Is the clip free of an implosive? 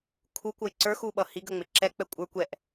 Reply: no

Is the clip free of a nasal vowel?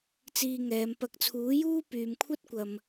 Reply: yes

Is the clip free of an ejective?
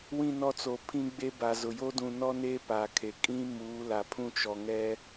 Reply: no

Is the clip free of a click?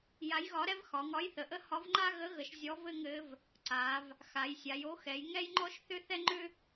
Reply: no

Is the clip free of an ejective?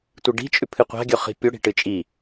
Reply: no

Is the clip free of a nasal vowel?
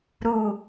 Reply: yes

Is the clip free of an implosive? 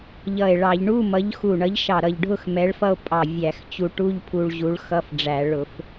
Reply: yes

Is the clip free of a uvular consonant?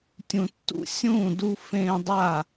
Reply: yes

